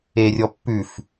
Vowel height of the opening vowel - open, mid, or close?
mid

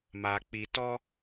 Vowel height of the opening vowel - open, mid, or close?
open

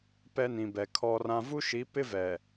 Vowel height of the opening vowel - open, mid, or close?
mid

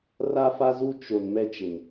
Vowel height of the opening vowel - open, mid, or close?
open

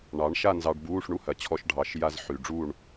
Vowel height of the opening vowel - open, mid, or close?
open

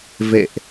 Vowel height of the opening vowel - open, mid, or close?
mid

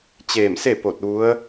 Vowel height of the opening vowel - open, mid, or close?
mid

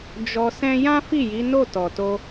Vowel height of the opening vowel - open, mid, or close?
mid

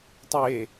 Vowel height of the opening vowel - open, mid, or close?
mid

